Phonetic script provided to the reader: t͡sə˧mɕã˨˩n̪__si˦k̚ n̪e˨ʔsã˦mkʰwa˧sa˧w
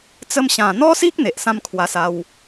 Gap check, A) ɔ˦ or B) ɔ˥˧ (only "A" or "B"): A